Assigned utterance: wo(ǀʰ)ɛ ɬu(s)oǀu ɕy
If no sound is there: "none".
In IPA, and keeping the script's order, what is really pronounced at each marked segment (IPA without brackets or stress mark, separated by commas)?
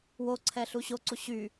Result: ǀʰ, ɕ